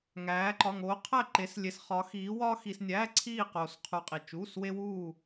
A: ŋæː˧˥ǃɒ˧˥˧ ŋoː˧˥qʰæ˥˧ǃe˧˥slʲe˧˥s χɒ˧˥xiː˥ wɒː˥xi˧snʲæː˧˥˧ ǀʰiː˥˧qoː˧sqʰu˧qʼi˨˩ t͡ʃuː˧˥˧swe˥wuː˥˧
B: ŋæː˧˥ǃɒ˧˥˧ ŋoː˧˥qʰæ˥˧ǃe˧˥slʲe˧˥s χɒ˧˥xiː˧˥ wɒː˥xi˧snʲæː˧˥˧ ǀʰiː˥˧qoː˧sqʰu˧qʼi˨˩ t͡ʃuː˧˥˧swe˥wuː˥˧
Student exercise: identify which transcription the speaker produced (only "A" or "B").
B